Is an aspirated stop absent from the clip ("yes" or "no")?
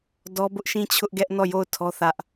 no